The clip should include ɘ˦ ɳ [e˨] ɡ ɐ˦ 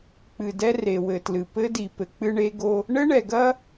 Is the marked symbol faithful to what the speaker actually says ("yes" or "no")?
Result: no